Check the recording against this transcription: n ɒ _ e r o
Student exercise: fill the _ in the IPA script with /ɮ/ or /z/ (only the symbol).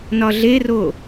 ɮ